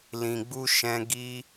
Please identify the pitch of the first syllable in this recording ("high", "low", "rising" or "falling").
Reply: low